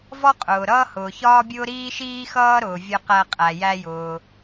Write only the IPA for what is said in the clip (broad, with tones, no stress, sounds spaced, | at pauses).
v ɔ˥ qʼ ʊː˩ ɾ ʌː˥ h ʊː˩ ç ɒː˥ bʲ ʊː˥ ɾ iː˥ ʃ iː˥ x ʌː˥ ɾ ʊː˩ vʲ ʌ˧ q æ˧ qʼ æ˩ j æ˧ j ʊː˩